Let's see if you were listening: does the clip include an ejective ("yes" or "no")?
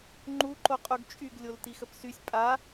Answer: yes